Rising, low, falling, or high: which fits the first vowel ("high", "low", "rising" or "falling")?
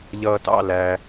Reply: low